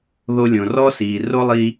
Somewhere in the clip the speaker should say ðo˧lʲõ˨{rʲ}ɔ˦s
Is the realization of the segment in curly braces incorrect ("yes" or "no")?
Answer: yes